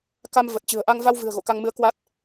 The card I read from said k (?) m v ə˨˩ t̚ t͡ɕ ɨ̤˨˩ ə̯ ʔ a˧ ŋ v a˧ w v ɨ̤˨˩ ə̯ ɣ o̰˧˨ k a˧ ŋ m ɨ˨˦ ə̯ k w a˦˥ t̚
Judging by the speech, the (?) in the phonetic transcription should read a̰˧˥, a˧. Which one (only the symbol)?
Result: a˧